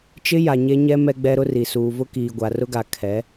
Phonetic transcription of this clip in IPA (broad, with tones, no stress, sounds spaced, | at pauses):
t͡ʃ ɪ˦ j a˨ ɲ e˦ ɲ ɛ˦ m ɛ˦ ɡ͡b ɛ˦ ɾ ʊ˦ r i˨ s uː˨ v ʊ˦ k iː˨ ɡʷ a˨ r ʊ˦ ɡ a˨ kʰ ɛ˨˦